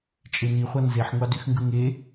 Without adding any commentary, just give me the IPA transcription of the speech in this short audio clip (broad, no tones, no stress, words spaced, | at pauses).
t͡ʃʼeni χʷɑnzeħ ŋʷɑdyxŋɡɯŋe